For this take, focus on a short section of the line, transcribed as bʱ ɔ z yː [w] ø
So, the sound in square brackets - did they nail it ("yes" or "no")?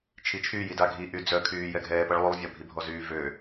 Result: no